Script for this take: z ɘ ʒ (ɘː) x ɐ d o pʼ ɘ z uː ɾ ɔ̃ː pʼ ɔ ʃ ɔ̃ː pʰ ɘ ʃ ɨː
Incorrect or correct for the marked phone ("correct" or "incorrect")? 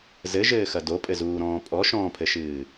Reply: correct